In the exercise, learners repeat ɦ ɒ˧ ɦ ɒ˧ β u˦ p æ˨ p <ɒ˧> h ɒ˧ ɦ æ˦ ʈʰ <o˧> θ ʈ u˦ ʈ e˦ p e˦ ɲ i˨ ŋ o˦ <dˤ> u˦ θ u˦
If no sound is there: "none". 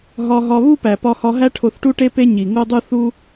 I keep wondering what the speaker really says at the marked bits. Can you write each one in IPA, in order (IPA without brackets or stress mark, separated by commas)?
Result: ɒ˧, o˧, dˤ